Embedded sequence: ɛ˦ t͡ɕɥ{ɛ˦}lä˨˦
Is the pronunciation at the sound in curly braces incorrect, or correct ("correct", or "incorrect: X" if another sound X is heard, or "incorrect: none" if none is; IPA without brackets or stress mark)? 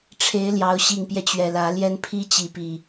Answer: incorrect: ɛ˨˩